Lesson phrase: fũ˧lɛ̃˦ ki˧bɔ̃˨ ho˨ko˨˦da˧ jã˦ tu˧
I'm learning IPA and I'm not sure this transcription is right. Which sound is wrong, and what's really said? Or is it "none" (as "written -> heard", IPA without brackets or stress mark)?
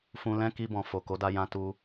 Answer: h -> f